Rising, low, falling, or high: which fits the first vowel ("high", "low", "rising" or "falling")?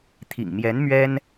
low